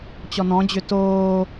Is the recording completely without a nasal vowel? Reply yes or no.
no